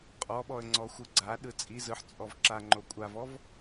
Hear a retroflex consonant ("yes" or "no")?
no